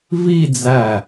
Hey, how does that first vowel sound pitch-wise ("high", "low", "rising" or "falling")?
falling